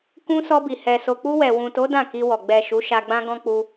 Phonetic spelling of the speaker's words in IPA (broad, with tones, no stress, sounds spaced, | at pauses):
k ũ˧ s ɔ˧ b i˨ h ɛ˨ s o˨ k͡p u˧ w ɛ˨ w ũ˨ t o˨˦ d ã˦˨ k i˧ w ɔ˨ ɡ͡b ɛ˨ ʃ u˨˦ ʃ a˧ ɡ͡b ã˦ ɡ ɔ̃˦ k͡p u˧